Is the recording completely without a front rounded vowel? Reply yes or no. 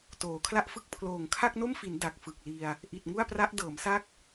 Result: yes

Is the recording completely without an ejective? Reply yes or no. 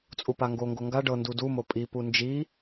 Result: no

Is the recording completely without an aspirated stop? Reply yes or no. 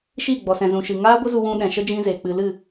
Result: yes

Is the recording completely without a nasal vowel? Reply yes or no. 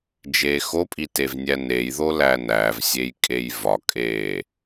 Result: yes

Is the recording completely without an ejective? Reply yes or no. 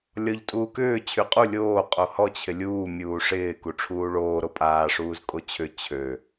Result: no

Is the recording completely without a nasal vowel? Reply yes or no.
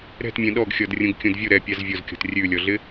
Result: no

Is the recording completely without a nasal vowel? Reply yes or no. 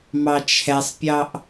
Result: yes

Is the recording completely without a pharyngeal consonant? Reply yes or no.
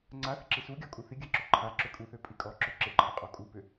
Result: yes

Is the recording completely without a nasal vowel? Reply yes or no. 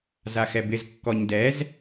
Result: yes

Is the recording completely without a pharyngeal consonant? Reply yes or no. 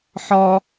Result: no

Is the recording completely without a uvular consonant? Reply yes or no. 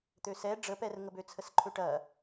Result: yes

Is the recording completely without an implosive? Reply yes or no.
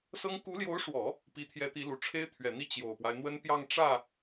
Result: yes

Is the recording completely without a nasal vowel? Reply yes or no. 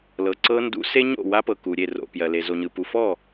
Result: yes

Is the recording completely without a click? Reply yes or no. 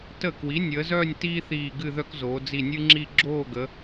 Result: no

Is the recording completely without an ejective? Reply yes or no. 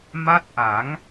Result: yes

